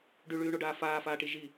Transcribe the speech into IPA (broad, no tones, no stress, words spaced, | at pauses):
ɖyɭyːɳoɖaː faːfaːʈi ʒi